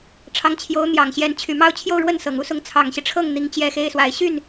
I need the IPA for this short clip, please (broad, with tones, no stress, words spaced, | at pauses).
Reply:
ʈ͡ʂʰɑ˧˥ŋt͡ɕʰjo˧˥ʊ̯n̪jɑ˨˩ŋɕjɛ˧˥n t͡ɕʰy˨˩mɑ˥˧ʊ̯t͡ɕʰjo˥˧ʊ̯ɻwə˥˩n sɤ˨˩ŋu˥sʊ˧˥ŋ t͡sʰɑ˨˩ŋɕi˦ʈ͡ʂʰɤ˥˩ŋ n̪i˥ŋt͡ɕjɛ˥xe˥ɪ̯swa˧˥ɪ̯ ɕy˥˩n